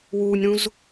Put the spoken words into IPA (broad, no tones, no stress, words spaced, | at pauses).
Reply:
wuːnʲɾũz